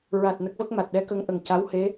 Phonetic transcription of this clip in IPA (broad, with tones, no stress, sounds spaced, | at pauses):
ɹ a˨˩ t̚ n ə˦˥ k̚ v ə˦˥ k̚ m a˨˩ t̚ ɗ ɛ˧˥ k ə˧˥ ŋ ʔ ə˨˩ ŋ c a˧˥ w h e˧˥